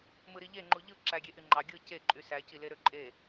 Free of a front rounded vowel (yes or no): no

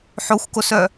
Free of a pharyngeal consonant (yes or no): no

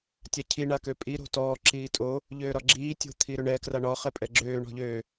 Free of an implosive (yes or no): yes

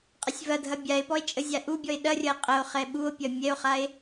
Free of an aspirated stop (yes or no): yes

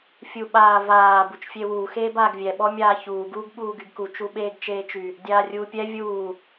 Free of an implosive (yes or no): no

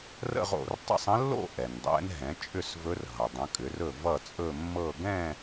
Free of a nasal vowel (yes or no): no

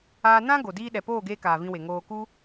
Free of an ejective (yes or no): yes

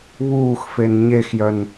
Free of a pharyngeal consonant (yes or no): yes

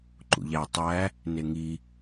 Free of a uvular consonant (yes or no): yes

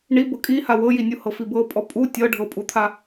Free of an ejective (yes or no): no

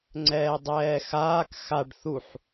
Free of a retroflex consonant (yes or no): no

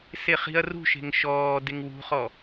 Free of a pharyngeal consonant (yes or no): yes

